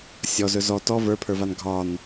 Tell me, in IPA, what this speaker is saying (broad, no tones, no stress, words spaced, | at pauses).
sʲɔzɵ zɔ tɔ və˞pʰə˞van ɡʱɒn